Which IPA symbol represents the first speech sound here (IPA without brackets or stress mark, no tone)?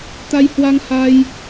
t̪